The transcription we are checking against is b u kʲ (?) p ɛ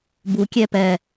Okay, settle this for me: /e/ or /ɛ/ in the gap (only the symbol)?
ɛ